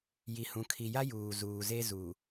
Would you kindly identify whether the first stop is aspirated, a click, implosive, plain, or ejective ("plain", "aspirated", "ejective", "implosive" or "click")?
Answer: aspirated